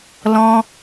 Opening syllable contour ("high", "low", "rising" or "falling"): high